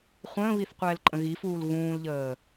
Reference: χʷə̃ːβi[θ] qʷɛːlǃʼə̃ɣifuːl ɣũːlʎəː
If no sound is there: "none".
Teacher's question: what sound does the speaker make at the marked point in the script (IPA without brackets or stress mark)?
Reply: θ